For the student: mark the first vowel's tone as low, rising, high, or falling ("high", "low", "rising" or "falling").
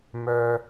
high